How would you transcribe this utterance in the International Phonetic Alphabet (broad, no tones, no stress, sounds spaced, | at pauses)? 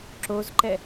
ǁ o z ǃ ɛ